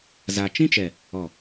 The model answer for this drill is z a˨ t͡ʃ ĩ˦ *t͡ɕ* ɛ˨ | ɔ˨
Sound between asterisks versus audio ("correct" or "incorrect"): incorrect